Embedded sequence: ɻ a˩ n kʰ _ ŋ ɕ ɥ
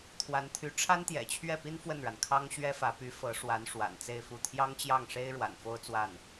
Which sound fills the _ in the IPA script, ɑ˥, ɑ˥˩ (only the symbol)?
ɑ˥